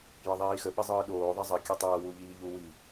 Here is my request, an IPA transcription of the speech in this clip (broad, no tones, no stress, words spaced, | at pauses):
jəðˤiːxə ɓəzˤɯːɗoː ðˤɐzˤə kʲətˤɐː wuʎiːʎu wi